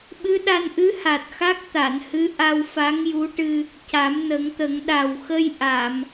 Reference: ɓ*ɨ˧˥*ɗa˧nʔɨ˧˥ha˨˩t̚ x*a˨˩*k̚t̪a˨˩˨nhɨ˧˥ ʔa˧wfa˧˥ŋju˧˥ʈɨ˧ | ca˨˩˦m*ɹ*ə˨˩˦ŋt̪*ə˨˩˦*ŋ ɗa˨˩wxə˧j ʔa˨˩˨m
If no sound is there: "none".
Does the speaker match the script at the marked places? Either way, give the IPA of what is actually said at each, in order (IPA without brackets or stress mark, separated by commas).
ɨ˧˥, a˦˥, n, ə˨˩˦